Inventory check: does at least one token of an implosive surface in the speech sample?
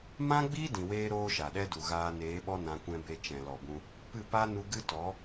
yes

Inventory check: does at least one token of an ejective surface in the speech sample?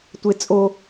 yes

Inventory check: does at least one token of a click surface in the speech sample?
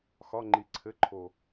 yes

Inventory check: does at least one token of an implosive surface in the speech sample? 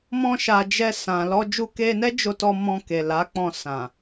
no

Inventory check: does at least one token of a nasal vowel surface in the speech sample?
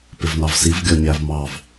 no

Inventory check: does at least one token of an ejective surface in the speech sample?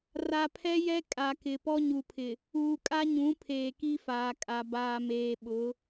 yes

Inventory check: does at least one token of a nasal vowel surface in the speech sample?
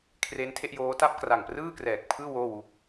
no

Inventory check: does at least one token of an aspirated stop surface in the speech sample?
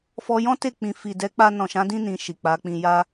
no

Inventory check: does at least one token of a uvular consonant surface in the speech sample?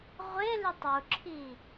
yes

